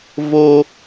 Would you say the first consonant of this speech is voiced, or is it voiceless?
voiced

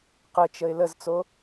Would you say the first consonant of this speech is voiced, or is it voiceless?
voiceless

